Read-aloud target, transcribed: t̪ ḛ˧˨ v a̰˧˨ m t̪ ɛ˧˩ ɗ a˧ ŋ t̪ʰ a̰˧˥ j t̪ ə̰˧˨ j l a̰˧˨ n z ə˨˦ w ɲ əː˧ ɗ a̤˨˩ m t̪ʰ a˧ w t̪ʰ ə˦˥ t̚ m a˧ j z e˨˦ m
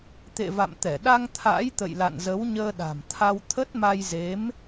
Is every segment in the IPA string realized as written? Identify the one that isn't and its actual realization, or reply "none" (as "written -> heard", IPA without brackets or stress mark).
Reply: none